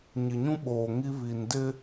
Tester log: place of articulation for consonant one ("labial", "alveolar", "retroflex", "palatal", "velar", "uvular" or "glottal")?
palatal